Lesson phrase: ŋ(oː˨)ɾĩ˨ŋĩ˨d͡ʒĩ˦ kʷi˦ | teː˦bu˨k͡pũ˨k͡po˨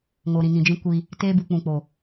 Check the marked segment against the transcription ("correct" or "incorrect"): incorrect